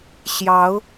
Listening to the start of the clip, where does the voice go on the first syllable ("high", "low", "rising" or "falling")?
rising